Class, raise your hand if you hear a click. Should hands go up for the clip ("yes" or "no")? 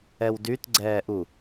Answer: yes